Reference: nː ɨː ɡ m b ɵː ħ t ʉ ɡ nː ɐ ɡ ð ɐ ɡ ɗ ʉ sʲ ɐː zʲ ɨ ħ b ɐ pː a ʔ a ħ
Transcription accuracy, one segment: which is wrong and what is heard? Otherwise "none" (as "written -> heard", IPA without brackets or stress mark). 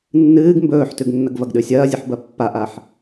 ð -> v